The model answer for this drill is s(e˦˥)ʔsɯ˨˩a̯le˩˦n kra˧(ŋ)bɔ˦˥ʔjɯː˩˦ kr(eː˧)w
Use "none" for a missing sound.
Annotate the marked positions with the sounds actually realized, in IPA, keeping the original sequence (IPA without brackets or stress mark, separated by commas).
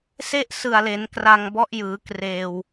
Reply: e˦˥, ŋ, eː˧